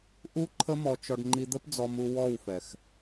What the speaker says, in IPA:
ʔ u˦ ǃʰ ə˦ m ɔ˧ t͡ʃ ɔ˧ ɖ ŋ͡ǃ i˧ d̪ ə˦ p d͡z ɔ˧ m u˧ w ɔ˦˨ w f ɛ˨ x

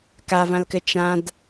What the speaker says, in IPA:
k a v ã l k ɘ t͡ʃ ã d

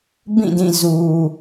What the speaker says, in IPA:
b ĩ˦˨ d ĩ˦˨ z u˨

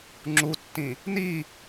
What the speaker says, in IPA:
ŋ͡ǁ u tː ĩ | n i

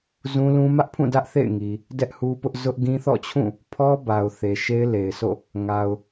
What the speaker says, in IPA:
z ũ˦ l ũ˦ m ä˦ ʔ pʰ ũ˦˨ d ä˦ ʔ θ ḛ˦˨ ɪ̯ ŋ i˨ | d ɛ˦ ʔ h u˦ p ʊ˦ ʔ z ʊ˦ ʔ ɡ ĩ˦ θ ɔ̰˦˨ t͡ɕʰ ũ˦˨ | pʰ ɔ˦ b a˨ ʊ̯ θ e˨ ʃ e˦ ɪ̯ l e˨ ɪ̯ s o̰˦˨ | ŋ a˨ ʊ̯

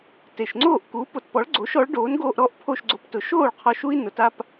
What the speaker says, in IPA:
t e˩ ʃ ŋ͡ǀ oː˥˩ ʔ k uː˩˥ p o˩ t p ɔ˩˥ ɭ ɡ͡ǀ o˩˥ ʃ ɔ˩˥ ɭ ɖ oː˩˥ n ɡ oː˧ ʔ ɾ ɔ˥˩ ʔ pʰ o˥˩ ʃ ɡ͡ǀ o˧ p t ʊ˩˥ ʃ oː˥˩ ɭ qʰ ɔ˧ ʃ u˥ i̯ n ʊ˩˥ t a˥ p

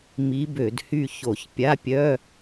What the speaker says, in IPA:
m i˧˥ b ø˧˩˧ d h y˦˨ ç o˧˩˧ ç pʲ a˧˥˧ pʲ œ˧˥˧

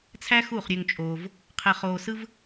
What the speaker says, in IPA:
t͡sʰ æ˦ x u˦˨ χ ɾʲ ø˧ ŋ t͡ʃʼ oː˧ v | qʰ e˧ χ oː˧ s ɯ˦ v

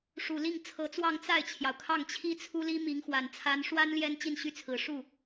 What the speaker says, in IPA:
ʂ u˨˩ l i˥˩ ŋ t͡sʰ ɤ˧˥ t͡s w ɑ˥˧ ŋ t͡s a˥˩ ɪ̯ t͡ɕʰ j ɑ˩ ʊ̯ kʰ ɑ˥˩ ŋ t͡ɕʰ i˥ t͡sʰ u˥ l i˥ m i˧˥ ŋ x w a˨˩ n t͡sʰ a˧˥ n ʂ w a˥ n l j ɛ˥ n t͡ɕ i˥˩ n ɕ y˥ t͡sʰ ɹ̩˨˩ ʂ u˥˩

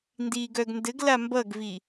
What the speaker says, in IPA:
n d iː ɡ œ ɡ n d ɘ ɡ l a m b ʌ ɡ v i

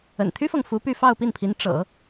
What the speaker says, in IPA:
ə̰˨˩ n t̪ʰ y˥ f ɤ˨ ŋ f u˧˥ p y˥˧ f ɑ˥˧ ʊ̯ p i˥˩ n pʰ i˧˥ n ʈ͡ʂ ɤ̰˨˩˦

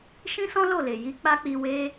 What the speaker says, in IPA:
ʃ ĩ˦ s ɔ̃˦ l o˦˨ l e˨ j i˧ k͡p a˦ k͡p i˧ w e˧

